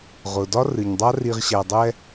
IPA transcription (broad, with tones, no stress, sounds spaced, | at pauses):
ʁ ʊ˨ d ɒ˦ r ɨ˨ ɲ dˤ a˦ r i˨ ʁ ɕ æ˨ dˤ ɛ˧